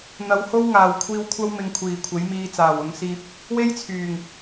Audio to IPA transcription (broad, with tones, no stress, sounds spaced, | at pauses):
n̪ ɐ˨˧ w h o˥ w ŋ aː˨ w kʷʰ iː˧ w kʷʰ ɐ˥ w m ɪ˧ ŋ kʷʰ iː˨ kʷʰ e˨˥ j m iː˧ t͡s aː˨˩ w ʊ˨˧ ŋ s iː˧ p̚ | w e˥ j t͡sʰ yː˨˩ ŋ